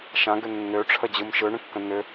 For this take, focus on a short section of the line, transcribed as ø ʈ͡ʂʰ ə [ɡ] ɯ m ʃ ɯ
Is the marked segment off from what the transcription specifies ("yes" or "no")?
yes